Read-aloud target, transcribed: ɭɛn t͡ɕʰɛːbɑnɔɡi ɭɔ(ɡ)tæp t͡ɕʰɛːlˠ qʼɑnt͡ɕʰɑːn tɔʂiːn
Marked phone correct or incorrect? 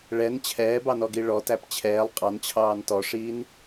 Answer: incorrect